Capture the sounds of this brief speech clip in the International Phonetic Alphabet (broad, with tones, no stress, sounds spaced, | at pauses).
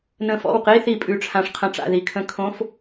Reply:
n ə̃˧˩ f ɔ̰˥˩ w q i˧˥˧ θ i˧˩ pʼ ʉ˧˩ ʈ͡ʂʰ ã˧ ʂ qʰ ə̃˧˩ ʈ͡ʂ a̰˥˩ ð i˧ kʰ ə̃˧˥˧ kʰ õ˧˥˧ f